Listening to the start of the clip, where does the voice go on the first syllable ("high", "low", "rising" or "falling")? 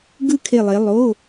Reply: falling